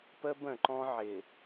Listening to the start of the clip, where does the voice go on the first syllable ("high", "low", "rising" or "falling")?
high